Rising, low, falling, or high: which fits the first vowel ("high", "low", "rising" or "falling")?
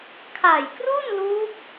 low